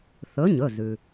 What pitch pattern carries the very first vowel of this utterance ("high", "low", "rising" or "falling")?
rising